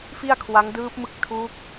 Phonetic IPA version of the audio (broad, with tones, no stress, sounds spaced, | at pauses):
f i˥˩ a̯ kʰ w a˦˥ ŋ d ɯː˦˥ p̚ m ɯ˦˥ k̚ tʰ u˦˥ k̚